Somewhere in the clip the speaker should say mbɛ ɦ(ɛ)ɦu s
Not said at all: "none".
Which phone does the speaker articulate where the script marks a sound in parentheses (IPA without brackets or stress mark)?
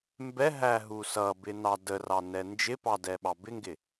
æ